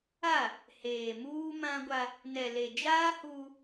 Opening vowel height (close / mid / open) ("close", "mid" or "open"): open